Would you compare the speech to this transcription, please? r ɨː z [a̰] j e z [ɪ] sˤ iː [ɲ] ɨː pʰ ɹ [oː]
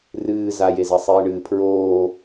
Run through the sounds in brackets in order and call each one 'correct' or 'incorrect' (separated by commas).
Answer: incorrect, incorrect, incorrect, correct